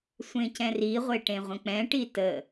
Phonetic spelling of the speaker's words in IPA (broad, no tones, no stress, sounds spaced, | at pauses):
sʷ ẽ c ɛ̃ r i ʁʷ e ʈ ẽ ʁʷ ə̃ k͡p ɛ̃ ʈ i t ə